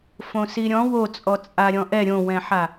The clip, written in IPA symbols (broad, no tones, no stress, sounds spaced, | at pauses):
f õ s i ɾʲ ɔ̃ w o t͡sʼ ɔ t͡sʼ a ɾʲ ɔ̃ ʔ ɛ ɾʲ õ w ɛ̃ ħ a